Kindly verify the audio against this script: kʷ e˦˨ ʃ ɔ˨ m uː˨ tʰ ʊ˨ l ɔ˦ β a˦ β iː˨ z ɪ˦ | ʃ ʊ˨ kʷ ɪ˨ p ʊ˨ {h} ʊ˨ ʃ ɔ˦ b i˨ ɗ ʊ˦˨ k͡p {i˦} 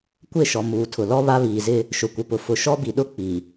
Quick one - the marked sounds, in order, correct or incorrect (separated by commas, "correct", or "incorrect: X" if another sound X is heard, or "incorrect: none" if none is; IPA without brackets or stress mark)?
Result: incorrect: f, incorrect: i˨